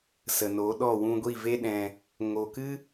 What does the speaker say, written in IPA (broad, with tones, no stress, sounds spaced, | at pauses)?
s ə˨ n o˨˦ ɗ ɔ˦˨ w ũ˧ ɡʷ i˦˨ v e˦ ɗ ɛ̃˧ | ŋ o˨ k ɨ˦